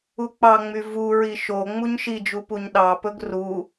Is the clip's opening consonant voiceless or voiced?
voiceless